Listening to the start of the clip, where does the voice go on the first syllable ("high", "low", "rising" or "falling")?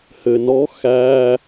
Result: low